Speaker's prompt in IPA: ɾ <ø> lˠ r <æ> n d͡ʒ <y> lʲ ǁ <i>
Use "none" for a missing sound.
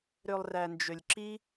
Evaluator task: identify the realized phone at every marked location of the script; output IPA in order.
ø, æ, ø, i

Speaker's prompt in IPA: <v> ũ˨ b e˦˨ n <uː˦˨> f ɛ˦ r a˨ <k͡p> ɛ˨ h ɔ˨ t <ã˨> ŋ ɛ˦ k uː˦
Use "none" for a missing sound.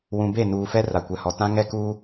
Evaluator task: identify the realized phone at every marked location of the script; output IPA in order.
w, uː˨, kʷ, ã˦

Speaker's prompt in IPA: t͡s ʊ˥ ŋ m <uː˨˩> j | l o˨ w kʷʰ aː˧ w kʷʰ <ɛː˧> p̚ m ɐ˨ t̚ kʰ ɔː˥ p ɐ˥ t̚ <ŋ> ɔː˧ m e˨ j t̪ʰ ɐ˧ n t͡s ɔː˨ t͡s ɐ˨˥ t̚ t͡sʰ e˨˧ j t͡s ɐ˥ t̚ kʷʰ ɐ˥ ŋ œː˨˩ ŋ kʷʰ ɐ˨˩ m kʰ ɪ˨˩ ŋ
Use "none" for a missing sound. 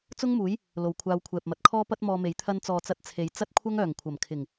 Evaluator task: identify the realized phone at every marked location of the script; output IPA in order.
uː˨˥, ɛː˨, m

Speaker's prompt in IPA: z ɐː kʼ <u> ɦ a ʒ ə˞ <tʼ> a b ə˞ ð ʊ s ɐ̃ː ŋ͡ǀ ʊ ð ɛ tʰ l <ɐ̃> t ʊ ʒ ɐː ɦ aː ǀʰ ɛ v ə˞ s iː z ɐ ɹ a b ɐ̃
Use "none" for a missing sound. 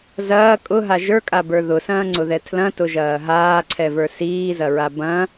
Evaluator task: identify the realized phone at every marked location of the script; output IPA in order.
ʊ, kʼ, ɐ̃

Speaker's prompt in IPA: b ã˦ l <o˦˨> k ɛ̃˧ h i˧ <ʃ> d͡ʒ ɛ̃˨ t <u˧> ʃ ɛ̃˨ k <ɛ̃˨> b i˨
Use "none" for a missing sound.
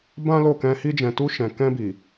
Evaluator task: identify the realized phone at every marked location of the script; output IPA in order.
o˦˨, none, u˧, ɛ̃˧

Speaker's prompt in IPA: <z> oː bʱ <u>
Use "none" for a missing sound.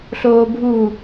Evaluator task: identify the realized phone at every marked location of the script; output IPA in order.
ɬ, u

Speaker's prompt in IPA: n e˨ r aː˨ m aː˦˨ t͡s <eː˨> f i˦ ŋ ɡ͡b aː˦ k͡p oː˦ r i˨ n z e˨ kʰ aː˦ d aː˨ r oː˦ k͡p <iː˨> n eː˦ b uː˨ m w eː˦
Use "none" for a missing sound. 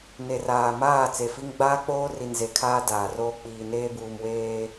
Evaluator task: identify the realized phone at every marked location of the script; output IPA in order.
e˨, iː˨

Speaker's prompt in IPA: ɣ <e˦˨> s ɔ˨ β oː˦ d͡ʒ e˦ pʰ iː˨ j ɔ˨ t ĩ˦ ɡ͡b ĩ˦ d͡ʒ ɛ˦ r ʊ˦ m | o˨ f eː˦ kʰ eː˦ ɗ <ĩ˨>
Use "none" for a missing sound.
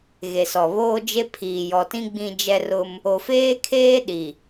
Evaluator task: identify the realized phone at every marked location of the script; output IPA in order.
e˨, i˨

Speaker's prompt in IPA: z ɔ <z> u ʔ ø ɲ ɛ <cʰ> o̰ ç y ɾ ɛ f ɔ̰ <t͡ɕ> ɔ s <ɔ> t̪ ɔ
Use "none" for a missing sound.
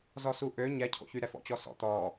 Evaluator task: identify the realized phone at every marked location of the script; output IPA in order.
s, cʰ, t͡ɕ, ɔ̰

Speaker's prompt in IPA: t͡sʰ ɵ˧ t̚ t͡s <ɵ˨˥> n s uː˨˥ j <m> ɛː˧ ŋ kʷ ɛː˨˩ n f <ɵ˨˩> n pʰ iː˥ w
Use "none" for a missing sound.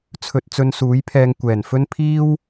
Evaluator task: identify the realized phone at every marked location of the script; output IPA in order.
ɵ˧, pʰ, ɵ˥

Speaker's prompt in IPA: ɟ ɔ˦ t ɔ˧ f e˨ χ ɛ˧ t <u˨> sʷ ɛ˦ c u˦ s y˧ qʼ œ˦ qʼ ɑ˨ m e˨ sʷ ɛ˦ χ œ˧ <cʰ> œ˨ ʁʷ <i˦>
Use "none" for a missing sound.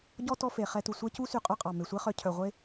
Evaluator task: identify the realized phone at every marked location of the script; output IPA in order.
u˨, cʰ, e˦

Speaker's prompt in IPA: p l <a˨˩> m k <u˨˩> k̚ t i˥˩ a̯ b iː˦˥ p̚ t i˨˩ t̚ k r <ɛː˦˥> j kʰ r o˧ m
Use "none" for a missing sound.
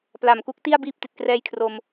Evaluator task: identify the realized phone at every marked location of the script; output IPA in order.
a˨˩, u˦˥, ɛː˦˥

